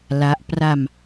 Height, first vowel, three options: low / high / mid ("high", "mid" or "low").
low